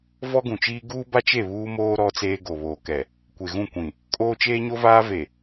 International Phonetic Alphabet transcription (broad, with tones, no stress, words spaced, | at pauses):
vɔ˦ɡũ˨t͡ʃiː˦ ɡuː˦ba˦t͡ʃe˦˨ βuː˦moː˦ ɾɔ˦t͡seː˦ ɡo˨βoː˨kɛ˨ | kʷe˨ɣũ˦˨kʷĩ˨ | kʼoː˦t͡ʃeː˦ɲo˦vaː˦ ve˨